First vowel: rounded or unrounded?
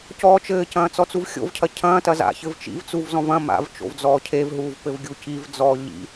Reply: rounded